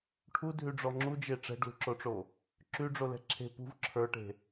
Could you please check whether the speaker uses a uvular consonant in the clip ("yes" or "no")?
no